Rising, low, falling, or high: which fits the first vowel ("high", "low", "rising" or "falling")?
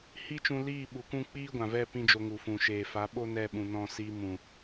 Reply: high